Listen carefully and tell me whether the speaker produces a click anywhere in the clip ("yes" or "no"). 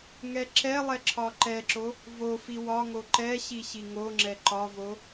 yes